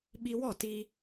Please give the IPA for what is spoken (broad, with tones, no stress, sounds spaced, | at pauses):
ɓ i˧ w ɔ˦˨ t i˧